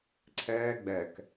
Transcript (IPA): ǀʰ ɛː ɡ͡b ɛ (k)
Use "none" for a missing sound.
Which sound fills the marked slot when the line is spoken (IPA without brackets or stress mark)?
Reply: k